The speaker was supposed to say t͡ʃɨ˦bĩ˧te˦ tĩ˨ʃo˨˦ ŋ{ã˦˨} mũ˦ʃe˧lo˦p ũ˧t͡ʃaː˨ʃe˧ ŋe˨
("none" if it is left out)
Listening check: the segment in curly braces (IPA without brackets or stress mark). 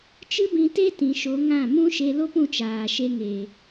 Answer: ã˦˨